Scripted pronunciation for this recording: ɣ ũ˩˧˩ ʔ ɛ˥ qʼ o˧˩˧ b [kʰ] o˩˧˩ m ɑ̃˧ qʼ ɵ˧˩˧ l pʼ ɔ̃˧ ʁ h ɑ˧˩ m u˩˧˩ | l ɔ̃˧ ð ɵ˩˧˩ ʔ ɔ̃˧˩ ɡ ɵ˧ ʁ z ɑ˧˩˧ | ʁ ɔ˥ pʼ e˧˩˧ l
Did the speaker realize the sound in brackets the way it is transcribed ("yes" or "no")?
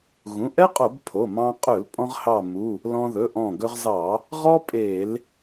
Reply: no